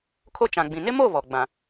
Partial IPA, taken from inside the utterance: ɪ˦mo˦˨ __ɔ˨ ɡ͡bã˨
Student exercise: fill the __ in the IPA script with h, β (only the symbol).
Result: β